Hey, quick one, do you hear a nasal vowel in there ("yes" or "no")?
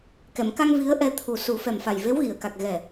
no